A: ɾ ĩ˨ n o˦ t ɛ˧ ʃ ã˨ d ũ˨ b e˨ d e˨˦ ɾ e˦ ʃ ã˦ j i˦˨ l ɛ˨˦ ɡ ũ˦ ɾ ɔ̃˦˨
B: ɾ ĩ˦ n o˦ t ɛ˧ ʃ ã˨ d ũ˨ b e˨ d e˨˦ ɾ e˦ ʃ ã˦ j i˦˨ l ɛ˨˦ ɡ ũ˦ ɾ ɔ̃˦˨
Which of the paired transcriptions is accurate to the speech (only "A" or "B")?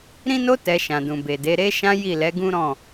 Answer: B